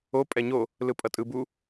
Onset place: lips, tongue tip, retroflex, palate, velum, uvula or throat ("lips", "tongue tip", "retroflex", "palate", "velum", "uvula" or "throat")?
lips